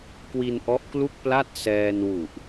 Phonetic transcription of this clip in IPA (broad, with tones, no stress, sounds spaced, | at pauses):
k w i˧ n ʔ ɔ˦˥ ʔ k l u˥˩ k̚ p l a˥˩ t̚ s ɛː˧ n w u˨˩ ʔ